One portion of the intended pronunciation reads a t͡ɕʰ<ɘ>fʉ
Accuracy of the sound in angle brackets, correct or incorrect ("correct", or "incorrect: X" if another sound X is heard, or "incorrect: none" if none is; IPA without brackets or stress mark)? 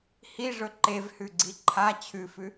incorrect: ʉ